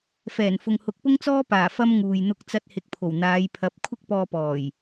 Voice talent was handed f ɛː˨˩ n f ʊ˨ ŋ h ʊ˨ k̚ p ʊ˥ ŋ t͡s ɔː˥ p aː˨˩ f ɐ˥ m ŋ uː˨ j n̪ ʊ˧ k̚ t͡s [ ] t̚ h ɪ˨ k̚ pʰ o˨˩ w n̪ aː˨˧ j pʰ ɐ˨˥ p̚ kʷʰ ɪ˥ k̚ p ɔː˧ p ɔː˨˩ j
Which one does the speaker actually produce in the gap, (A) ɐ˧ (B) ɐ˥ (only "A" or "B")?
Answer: A